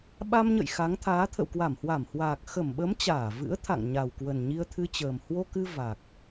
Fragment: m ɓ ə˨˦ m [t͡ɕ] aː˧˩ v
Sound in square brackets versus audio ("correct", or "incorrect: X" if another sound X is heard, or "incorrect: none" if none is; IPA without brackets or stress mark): correct